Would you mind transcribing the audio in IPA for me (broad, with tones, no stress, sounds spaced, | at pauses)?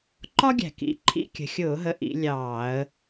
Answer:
ǃ ɒ˥ ɡʲ æ̤˨˩ k ḭ˨˦ ǃʰ ḭ˧˥˧ kʲ ə̤˨˩ xʲ ʊː˧˩˧ ɦ ə˨˦ ʔ ḭ˨˦ lʲ ɑː˧˩˧ ə̯